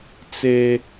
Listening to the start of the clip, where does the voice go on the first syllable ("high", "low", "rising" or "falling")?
high